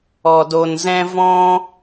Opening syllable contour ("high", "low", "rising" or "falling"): low